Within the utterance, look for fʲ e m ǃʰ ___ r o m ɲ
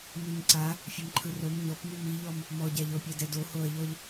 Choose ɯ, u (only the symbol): ɯ